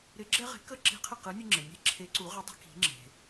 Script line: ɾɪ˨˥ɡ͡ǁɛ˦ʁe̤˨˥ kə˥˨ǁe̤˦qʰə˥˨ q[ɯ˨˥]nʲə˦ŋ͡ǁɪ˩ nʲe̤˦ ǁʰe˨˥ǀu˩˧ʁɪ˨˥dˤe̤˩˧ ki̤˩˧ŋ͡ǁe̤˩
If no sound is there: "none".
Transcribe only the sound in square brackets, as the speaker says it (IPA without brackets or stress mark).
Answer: ɯ˨˥